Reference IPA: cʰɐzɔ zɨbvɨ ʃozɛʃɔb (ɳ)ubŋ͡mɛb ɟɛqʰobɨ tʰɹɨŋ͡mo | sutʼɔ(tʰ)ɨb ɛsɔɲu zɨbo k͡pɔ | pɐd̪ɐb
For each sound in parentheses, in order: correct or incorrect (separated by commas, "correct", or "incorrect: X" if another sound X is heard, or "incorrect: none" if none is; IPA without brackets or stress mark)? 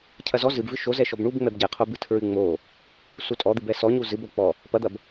correct, incorrect: d̪